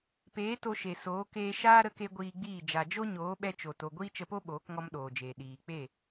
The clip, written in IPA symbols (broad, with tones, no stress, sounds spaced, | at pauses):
p eː˨˦ t o˧ ʃ e˨ s oː˨˦ k eː˧ ʃ aː˦ ɾ ə˧ k e˧ ɡʷ iː˧ ɡ͡b iː˦˨ d͡ʒ a˨ d͡ʒ o˦ ɲ oː˨˦ ɓ ɛ˧ t͡ʃ o˧ t o˧ ɡʷ iː˦ t͡ʃ ə˧ p o˦ ɓ oː˨˦ k ŋ ɔ˧ m ɗ oː˨ d͡ʒ eː˨ ɗ iː˨ k͡p e˦˨